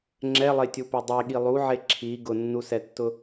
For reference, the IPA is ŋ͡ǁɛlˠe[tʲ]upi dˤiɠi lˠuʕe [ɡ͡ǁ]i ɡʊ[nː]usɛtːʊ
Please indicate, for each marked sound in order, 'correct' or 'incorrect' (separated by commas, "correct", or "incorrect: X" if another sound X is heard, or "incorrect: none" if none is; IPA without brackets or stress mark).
correct, incorrect: ǁʰ, correct